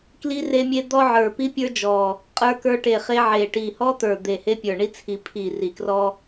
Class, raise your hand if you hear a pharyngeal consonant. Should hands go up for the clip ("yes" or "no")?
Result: yes